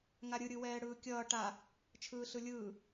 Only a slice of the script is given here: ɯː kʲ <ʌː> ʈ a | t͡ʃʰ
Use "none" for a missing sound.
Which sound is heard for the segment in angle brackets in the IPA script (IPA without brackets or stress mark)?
ʌː